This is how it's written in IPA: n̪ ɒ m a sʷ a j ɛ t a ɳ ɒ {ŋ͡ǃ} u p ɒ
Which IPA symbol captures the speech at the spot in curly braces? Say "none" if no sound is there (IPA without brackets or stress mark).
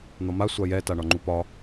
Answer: ŋ͡ǃ